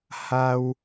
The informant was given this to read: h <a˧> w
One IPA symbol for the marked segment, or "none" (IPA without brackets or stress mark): a˧